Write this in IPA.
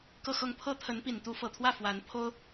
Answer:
k ɤ˥˧ x ɤ˥˩ ŋ pʰ ɤ˥ t̪ʰ ə˧˥ n p i˨˩ n t̪ u˧˥ f ɤ˨˩ t̪ʰ w ä˥˩ f w a˧˥ n pʰ o˥ ʊ̯

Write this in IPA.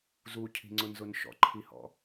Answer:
z u cʰ i̤ ŋ͡ǀ ʊ n z ʊ n ʃ ɔ̰ ǃʰ i h ɔ̰

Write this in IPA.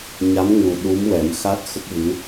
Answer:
ɲ a˧˥ m ŋ u˨˩ ɗ u˧˥ m w ɛ˨˩˦ m x a˦˥ t̚ x ə˦˥ k̚ v ɨ˧˥

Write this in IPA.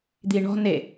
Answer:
d̪ i ɳ ɔ̤ n e

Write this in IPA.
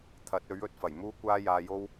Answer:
t̪ʰ ɐ˨˥ t̚ ɵ˨˥ ɥ ɵ˧ t̚ f ɐ˨˩ j m uː˥ kʷ aː˥ j aː˧ j o˥ w

